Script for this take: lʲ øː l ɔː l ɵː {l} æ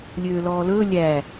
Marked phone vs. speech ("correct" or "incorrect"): incorrect